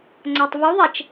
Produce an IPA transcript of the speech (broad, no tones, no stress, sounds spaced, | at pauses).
ŋ͡ǀ a tˤ v u ðˤ ɛ t͡ʃ